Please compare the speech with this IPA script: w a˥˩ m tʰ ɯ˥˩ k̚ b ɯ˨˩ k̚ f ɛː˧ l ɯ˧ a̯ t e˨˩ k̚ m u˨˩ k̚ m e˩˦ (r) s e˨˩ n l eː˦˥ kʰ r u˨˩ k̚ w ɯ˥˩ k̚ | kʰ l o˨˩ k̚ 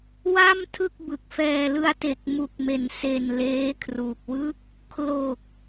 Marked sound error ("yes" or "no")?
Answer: yes